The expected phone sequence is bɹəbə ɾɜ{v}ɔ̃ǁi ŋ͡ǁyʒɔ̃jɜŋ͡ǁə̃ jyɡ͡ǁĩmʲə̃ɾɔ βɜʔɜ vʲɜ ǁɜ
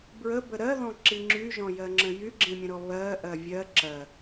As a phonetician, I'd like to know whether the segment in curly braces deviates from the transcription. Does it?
yes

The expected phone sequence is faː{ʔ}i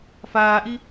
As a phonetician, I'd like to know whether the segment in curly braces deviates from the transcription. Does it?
no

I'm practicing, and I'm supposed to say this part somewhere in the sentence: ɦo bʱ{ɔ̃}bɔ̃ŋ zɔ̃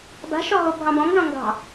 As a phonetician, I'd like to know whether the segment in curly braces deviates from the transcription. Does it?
yes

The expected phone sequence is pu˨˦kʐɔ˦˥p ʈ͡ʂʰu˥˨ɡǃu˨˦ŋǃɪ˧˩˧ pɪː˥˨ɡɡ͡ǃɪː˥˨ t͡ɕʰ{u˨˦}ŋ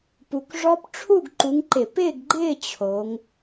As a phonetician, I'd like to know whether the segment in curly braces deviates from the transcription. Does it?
yes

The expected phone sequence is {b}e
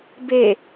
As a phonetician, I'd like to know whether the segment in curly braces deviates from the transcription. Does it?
no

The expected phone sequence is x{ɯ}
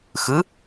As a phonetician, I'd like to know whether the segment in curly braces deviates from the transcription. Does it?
no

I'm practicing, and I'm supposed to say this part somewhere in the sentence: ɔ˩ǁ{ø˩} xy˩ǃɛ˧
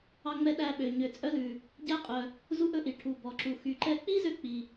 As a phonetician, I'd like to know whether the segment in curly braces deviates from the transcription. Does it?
yes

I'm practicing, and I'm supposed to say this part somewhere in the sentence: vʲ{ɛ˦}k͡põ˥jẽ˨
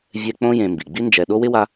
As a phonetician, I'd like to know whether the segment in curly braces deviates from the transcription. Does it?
no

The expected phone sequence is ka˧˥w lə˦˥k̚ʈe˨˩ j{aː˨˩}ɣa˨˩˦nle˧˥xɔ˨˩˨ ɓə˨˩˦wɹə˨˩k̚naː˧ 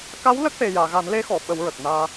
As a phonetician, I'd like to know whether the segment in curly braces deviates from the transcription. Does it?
yes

